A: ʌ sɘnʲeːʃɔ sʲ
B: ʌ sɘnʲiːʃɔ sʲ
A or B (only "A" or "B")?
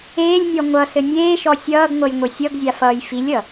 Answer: A